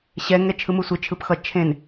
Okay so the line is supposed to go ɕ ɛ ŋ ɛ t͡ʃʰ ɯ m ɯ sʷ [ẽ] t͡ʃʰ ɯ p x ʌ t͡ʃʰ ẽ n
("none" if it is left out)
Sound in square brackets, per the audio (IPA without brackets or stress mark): e